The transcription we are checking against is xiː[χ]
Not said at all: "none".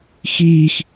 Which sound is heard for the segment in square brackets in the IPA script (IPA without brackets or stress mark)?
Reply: x